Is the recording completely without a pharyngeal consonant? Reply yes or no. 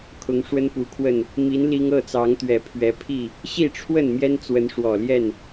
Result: yes